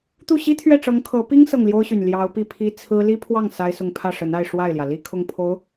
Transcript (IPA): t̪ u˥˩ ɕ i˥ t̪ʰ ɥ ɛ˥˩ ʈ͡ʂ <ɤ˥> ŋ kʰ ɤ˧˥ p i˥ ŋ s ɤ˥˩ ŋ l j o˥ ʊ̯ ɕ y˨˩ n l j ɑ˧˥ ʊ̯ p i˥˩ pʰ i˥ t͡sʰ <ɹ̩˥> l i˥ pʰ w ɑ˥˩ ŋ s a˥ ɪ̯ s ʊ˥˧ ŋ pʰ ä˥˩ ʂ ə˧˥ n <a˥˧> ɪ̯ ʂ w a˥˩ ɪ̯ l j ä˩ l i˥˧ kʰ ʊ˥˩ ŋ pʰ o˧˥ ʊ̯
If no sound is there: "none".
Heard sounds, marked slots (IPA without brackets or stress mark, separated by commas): ɤ˧˥, ɹ̩˥, a˥˧